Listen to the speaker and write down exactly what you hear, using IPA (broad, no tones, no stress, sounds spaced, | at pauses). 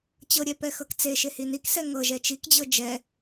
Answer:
t͡ɕ ɤ ɾʲ ɛ p ɛ x ɤ k t͡s e ʃ e h i n i k s ɛ ŋ ɤ ʒ ɛ t͡ʃ i k d͡ʑ ɤ d͡ʒ ɛ